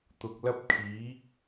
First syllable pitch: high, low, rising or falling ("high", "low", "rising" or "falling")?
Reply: low